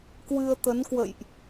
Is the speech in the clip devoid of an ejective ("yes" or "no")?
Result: yes